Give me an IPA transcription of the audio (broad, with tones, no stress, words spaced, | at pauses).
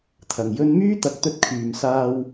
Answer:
t̪ʰɐ˨˩ŋjɵ˧nmyː˥ t̪ɐ˨˥k̚t̪ɵ˧t̚kʰyː˨msaː˧w